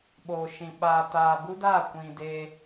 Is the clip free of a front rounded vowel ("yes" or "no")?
yes